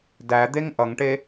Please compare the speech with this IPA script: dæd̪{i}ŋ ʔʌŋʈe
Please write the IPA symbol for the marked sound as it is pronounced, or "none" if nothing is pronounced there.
e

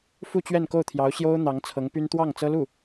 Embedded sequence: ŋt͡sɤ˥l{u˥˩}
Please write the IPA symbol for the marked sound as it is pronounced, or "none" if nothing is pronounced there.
u˥˩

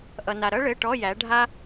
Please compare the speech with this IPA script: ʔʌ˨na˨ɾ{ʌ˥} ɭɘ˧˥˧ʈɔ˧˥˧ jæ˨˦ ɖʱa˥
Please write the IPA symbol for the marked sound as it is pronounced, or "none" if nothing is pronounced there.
ʌ˥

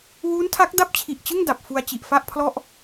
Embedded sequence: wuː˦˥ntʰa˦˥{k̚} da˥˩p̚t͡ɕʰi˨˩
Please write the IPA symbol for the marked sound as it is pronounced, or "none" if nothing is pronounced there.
k̚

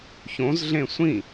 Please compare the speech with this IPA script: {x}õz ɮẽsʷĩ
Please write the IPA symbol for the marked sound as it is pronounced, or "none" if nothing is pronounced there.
ç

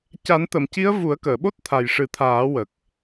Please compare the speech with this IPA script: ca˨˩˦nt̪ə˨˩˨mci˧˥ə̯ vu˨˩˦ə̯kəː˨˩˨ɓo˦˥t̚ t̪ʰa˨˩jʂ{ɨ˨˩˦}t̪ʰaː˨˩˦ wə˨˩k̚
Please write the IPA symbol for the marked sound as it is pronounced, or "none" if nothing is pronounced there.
ɨ˨˩˦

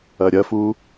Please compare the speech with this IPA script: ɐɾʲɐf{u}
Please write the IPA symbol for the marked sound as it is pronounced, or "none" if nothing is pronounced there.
u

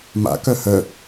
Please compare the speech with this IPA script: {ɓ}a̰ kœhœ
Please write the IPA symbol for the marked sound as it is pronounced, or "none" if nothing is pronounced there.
m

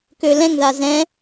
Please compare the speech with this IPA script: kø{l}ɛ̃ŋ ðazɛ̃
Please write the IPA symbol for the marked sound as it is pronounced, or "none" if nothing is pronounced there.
l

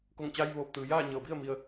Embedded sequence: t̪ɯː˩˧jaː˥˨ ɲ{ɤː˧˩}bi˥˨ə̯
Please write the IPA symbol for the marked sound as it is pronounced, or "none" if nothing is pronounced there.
ɤː˧˩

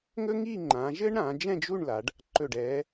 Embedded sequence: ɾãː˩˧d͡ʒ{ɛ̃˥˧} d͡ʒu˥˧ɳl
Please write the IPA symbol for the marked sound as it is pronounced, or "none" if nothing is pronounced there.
ɛ̃˥˧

